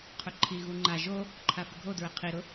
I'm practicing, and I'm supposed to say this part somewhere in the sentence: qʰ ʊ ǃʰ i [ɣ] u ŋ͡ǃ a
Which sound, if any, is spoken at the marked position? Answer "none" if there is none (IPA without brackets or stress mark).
ɣ